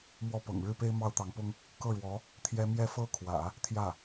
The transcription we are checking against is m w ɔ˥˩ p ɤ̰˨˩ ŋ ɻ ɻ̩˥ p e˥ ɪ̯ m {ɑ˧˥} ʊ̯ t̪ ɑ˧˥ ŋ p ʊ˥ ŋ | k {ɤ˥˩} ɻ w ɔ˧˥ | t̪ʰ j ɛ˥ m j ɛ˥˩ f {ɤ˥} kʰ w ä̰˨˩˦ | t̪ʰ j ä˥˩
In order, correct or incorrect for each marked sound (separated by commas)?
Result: incorrect, correct, correct